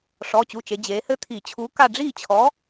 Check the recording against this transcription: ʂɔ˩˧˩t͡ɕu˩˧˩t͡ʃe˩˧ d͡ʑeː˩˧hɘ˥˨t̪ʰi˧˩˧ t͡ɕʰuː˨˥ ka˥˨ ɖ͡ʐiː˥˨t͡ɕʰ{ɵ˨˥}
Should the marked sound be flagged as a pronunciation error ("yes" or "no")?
yes